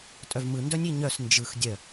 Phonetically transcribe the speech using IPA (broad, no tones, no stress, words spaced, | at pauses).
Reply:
tʼœvmɯ ndœnʲiɲœs nd͡ʒɯx dʲœ